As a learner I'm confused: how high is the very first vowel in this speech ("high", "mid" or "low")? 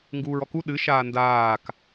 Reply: high